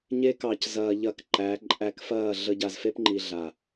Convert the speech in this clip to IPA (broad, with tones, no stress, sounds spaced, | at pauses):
ɲ e˧ k ɑ˨ c z ɐː˨ ʎ ɐ˨ k ǃ æ˨˦ ǃʼ æ˧ k f ɐː˦˨ ɮ ə˧ ɟ a˨ z f e˦ p ŋ͡ǃ i˨ ɮ a˨